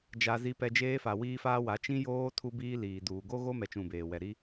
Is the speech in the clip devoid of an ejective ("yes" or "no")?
yes